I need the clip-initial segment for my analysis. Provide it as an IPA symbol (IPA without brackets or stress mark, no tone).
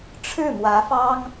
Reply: ʈ͡ʂʰ